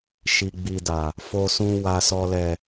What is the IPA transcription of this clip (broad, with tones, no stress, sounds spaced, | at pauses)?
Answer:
ʃ i˨ ɡ͡b i˨ d a˨ | f o˨ s ũ˨ w a˨ s ɔ˨ l ɛ˨